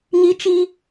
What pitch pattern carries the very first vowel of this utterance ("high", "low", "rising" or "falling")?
high